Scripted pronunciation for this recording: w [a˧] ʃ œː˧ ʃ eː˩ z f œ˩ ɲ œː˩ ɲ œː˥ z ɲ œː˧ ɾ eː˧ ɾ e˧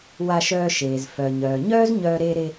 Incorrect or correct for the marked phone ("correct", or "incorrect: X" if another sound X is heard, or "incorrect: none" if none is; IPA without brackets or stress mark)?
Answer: correct